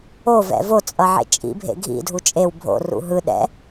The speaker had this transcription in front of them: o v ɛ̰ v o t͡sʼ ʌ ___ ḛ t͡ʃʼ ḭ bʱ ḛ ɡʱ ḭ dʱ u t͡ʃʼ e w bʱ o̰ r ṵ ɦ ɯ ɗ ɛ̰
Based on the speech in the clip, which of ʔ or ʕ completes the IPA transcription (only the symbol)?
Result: ʕ